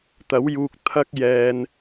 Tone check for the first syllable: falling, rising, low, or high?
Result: rising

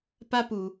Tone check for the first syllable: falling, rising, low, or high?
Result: high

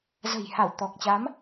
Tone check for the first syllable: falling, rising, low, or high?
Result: low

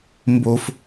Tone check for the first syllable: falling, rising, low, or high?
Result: low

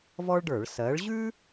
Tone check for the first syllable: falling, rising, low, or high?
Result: high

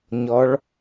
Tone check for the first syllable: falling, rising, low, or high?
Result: rising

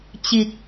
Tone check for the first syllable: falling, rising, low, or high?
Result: low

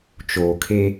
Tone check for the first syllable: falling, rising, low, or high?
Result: low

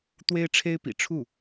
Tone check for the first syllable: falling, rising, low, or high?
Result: high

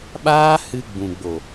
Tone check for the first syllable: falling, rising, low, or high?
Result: high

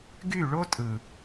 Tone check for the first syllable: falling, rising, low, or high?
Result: falling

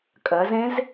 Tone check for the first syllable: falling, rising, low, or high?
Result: rising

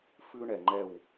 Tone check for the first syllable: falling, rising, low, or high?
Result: high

